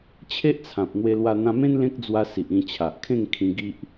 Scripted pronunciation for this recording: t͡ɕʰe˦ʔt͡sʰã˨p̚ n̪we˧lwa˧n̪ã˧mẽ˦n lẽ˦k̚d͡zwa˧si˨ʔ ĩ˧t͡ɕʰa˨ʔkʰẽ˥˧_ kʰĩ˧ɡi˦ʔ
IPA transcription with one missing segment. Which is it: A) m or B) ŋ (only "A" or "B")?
B